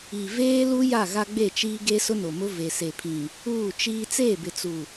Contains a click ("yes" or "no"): no